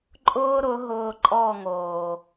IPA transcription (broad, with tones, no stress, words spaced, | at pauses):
ǃʼʊː˦ɾʊ˨˦ ɦʊː˧ǃʼɔ˦˨ŋoː˨